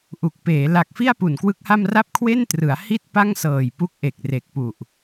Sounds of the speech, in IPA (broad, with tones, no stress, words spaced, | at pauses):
ʔu˨˩k̚peː˩˦ la˨˩k̚fi˥˩a̯ pu˨˩nkwɯ˦˥k̚ha˥˩m ra˥˩p̚ kʰwe˥˩ntrɯ˩˦a̯hi˥˩t̚ pa˥˩ŋsɤː˨˩jpu˦˥k̚ʔe˨˩k̚ re˨˩k̚pu˨˩ʔ